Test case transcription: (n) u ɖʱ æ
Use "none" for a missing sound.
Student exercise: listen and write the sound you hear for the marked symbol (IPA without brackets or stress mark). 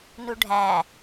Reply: n